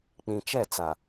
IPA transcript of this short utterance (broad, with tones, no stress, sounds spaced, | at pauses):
k͡p ĩ˨ t͡ʃ ɛ˦˨ t͡s a˨